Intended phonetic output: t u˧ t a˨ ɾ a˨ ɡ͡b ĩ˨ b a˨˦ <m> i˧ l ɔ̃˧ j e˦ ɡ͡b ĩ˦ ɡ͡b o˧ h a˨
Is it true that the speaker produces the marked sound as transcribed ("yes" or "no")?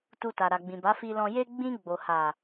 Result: no